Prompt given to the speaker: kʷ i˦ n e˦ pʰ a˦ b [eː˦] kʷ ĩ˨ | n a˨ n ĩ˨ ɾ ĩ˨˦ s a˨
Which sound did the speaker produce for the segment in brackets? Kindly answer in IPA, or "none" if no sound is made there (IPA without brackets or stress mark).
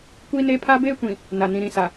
eː˦